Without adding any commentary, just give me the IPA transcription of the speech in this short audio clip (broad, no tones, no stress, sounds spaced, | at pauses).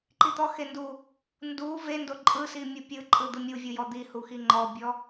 ǃ i t̪ ɔ x e n d u | n d u v e n d o ǃʼ ɯ s i mʲ u pʲ ɯ ǃʼ ɯ d̪ ɯ mʲ u vʲ u j ɔ d̪ i h u x i ŋ͡ǃ ɔ bʲ ɔ